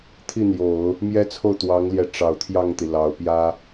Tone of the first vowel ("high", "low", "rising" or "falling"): falling